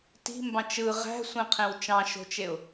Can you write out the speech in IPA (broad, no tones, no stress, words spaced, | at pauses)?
ti̤mbɑ̃t͡ʃ ɯ ʁæ̤sʷẽqʰẽw t͡ʃɑ̃ʃo̤t͡ʃeʊ̯